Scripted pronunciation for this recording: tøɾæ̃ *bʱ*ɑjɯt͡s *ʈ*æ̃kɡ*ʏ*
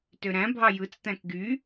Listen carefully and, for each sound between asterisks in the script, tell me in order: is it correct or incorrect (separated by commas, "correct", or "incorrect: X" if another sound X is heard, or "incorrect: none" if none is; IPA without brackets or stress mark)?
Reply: correct, incorrect: t̪, incorrect: y